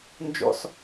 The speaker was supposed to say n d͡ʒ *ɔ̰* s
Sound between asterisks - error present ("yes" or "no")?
no